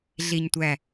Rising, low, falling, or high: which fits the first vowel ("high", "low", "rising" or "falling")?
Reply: low